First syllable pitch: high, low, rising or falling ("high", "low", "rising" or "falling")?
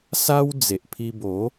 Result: high